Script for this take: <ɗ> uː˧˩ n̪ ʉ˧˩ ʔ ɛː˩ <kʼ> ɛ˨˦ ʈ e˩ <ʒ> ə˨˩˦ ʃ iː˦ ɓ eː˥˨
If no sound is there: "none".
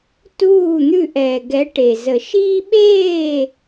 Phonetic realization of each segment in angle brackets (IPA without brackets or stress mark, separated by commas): t, ɡ, z